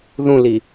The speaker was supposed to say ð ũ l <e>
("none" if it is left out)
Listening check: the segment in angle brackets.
i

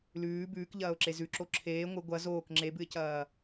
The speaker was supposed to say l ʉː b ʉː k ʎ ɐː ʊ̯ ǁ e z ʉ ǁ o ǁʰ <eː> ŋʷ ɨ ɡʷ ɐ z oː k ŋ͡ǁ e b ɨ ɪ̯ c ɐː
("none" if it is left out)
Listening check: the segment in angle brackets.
eː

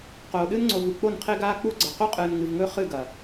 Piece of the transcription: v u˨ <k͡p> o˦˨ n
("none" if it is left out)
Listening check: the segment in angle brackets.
k͡p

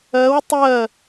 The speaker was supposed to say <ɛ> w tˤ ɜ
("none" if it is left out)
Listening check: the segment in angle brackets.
ɜ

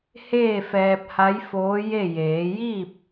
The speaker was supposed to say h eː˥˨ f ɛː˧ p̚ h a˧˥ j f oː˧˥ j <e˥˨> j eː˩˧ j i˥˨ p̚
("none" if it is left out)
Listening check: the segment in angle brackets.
e˥˨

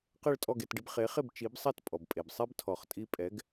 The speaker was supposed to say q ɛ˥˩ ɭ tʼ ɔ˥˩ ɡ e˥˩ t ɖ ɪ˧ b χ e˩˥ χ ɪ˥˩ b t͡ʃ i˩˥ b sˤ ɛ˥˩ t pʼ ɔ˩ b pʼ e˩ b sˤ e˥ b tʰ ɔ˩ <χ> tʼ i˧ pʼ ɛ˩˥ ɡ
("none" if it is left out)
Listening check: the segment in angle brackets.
χ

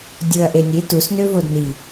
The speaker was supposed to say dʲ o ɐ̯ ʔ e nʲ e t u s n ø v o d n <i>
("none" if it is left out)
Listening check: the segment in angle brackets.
i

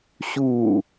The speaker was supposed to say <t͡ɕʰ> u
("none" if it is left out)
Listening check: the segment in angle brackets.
ɕ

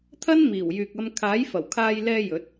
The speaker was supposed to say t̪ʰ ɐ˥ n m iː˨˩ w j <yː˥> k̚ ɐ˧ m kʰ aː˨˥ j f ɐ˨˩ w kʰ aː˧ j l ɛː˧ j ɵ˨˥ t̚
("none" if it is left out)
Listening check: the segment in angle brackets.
yː˨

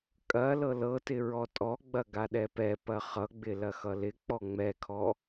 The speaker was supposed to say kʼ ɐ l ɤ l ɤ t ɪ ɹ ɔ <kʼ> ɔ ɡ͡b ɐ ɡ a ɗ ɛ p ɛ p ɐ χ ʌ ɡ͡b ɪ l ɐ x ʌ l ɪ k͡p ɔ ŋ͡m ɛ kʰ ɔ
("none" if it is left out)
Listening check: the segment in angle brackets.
tʼ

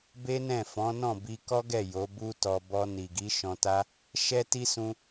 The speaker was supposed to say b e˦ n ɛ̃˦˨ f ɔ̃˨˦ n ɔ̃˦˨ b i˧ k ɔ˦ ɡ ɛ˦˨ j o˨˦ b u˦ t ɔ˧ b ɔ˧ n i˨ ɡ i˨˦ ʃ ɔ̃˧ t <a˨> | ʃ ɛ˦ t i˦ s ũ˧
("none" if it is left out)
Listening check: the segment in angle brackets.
a˦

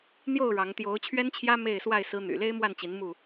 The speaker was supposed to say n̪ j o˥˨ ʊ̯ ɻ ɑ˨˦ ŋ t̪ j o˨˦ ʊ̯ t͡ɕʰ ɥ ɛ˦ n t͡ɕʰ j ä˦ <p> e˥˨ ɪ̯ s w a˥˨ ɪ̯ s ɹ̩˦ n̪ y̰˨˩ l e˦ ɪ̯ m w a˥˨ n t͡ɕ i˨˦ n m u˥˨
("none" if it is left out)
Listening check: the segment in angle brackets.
m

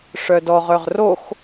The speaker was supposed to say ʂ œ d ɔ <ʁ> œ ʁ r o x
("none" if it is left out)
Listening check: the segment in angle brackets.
ʁ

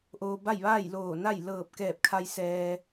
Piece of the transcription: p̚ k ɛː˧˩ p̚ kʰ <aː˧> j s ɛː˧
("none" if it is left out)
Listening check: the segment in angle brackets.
a˧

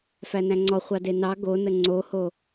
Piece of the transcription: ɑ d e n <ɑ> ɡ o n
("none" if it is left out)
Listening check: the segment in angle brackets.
ɑ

